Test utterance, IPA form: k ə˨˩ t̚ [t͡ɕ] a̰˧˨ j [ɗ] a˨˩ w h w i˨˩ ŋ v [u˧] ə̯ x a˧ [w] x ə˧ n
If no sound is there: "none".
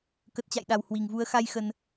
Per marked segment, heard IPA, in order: t͡ɕ, ɗ, u˨˦, j

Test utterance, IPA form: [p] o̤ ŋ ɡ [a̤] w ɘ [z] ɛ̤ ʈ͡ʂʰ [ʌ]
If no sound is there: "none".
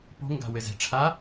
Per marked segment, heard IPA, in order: p, a̤, z, a

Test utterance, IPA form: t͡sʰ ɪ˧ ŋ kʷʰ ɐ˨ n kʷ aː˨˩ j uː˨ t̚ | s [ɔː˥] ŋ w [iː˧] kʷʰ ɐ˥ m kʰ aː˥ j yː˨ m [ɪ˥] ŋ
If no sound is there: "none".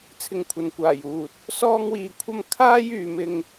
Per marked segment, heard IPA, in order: ɔː˥, iː˧, ɪ˥

